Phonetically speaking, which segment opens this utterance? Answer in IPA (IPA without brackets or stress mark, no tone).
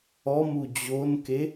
ɔ